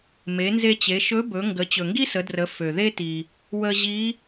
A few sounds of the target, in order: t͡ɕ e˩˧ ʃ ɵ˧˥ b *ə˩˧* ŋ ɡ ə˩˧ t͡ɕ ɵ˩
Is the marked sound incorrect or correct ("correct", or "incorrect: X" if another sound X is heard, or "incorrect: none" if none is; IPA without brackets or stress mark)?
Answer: incorrect: ɵ˩˧